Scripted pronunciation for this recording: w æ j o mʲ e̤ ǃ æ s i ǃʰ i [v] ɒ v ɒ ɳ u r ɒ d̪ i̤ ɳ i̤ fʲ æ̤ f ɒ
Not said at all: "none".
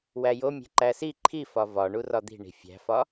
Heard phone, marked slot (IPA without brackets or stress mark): f